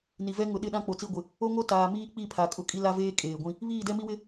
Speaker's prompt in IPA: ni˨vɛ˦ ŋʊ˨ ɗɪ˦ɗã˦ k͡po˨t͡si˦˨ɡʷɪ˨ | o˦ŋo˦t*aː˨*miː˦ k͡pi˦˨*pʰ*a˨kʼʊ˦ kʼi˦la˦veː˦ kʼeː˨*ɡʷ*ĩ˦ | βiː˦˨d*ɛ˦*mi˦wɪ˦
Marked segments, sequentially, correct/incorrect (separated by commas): correct, correct, correct, correct